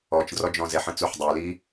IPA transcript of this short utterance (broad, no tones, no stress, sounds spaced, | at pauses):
ɔ t͡ʃ d r ɔ d͡ʒ ɔ̃ z ɛ ħ ə̃ t͡s u ħ dˤ ə˞ l i